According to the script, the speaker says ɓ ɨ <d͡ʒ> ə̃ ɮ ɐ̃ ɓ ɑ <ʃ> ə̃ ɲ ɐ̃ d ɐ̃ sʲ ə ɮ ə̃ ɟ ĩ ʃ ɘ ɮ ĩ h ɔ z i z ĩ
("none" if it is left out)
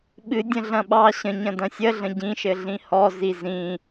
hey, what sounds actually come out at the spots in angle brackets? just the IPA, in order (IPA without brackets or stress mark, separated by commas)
dʲ, ɕ